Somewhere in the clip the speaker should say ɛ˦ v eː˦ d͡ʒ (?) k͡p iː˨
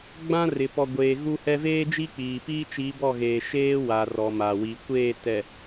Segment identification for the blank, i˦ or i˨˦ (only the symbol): i˦